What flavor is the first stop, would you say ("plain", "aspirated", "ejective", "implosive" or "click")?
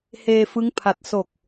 aspirated